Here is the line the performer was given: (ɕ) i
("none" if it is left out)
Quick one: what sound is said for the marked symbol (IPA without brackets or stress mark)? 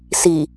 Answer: s